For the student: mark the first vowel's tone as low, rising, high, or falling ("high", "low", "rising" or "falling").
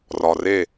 low